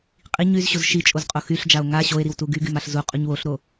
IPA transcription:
qʼ i ɲ y z ɕ o z ʃ i t͡ʃʼ o z qʼ o x y ɬ d͡ʒ a o̯ ŋ a ɕ o e̯ ɾ i w t u ɡ y ɡ y m a ɬ z u qʼ u ɲ w o ɬ ɾ o

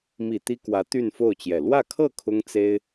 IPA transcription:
m i˨˩ t̪ i˥ k w ä˧˥ t̪ y˥˧ n f o˥˩ ʊ̯ t͡ɕ j ɛ˨˩ l w ä˥˧ kʰ ɤ˥˩ kʰ ʊ˥ ŋ t͡s e˥ ɪ̯

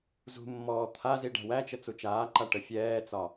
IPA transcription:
z ṳ mː ɔː t̪ʰ a z i ɖ æ̤ w æ t͡ʃ ə t͡s u t͡ʃ aː ǃ a ʈ ə fʲ ɛː t͡s ɒ

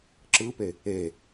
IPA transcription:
ǁ ɯ p e | e

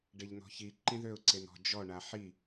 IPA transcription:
ɖ e ʎ n ɔ̤ ç i ǃ ĩ ð ø ʊ̯ ǀ e n ɔ̤ d͡ʒ ɔ ɳ a ħ i

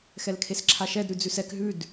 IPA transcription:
x ɛ l kʰ e s ǁʰ a ʃ ɛ d ɾ ʉ d͡z ʉ s ɛ k ɦ ʉ d

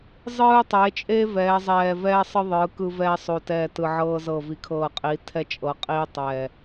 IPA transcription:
zˤ ɯː˧ tˤ e˩˧ t͡ʃʼ e˧ v ɛː˩˧ zˤ ɛː˨˩ v ɛː˧ sˤ ɯ˧ ðˤ ɯː˩˧ k ɯ˧ v ɛː˧ sˤ o˨˩ t ɛː˨˩ t ɯ˨˩ ʕ ɤː˧ z ɤ˨˩ v i˩˧ kʰ ɤː˨˩ qʼ i˩˧ tʰ ɛ˧ t͡ʃʼ ɤ˩˧ qʼ iː˧ tˤ ɛː˨˩

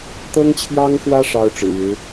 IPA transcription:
t̪ ɤ˥ ŋ t͡ɕʰ j ɑ˥ ŋ x w ä˥ ʂ ɑ˥ ʊ̯ ʈ͡ʂ ɻ̩˨˩ ɻ ɻ̩˧˥

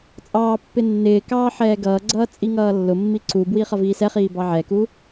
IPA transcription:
t͡sʼ ɑː pː ɪ nː ɪː k ɑː ħ ɛː ɡ ʌː ɡ͡ǀ ʌː t͡sʼ i ŋ ʌː lː ʊ mː i ǀ u b w i χ ʌ v iː s ɛ χ iː b ɑ ʕ ɛ k u

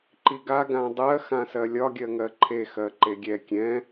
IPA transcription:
ǃ i ɡ a ɡ ã dˤ ɜ x ã s ɜ lʲ ɒ ɡʲ ɜ ŋ ɜ ǃʰ e x ɜ ǃ e ɡʲ ɛ kʲ ɛ̃

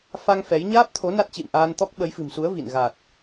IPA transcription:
f a˧ ŋ f ɛ˨˦ j ɲ aː˦˥ p̚ t̪ʰ o˨˦ n a˦˥ t̚ t͡ɕ ḭ˧˨ m ʔ aː˧ n t̪ ɔ˦˥ k̚ ɓ ə˨˦ j f ɨ̤˨˩ m s u˨˦ ə̯ v ḭ˧˨ n ɣ a˨˩ t̚

